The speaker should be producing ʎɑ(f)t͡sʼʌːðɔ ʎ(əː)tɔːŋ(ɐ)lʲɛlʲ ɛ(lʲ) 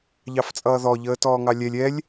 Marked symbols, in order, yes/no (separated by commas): yes, yes, no, yes